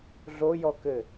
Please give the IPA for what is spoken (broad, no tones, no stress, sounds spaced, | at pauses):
ɮ o j ɔ k ɘ